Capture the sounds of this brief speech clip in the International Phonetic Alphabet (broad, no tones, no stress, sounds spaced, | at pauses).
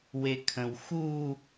w e kʰ ə̃ w x u